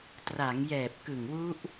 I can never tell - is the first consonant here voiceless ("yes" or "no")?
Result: yes